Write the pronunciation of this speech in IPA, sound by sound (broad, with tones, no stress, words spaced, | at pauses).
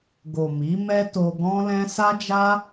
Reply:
ɡo˨ mi˨˦ mɛ˦to˧ ɡɔ̃˦lɛ̃˦ sa˦d͡ʒa˦